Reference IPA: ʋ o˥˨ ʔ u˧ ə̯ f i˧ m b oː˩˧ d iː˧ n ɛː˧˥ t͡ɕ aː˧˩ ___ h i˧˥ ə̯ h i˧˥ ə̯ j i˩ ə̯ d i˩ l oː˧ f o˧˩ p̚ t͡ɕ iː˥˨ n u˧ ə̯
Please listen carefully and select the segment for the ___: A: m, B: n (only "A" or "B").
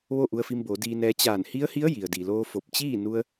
B